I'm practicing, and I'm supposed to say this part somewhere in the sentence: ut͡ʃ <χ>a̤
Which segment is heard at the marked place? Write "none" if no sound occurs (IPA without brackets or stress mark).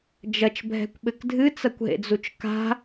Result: k